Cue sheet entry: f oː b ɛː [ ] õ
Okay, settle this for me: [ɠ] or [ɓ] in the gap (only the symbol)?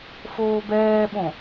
ɓ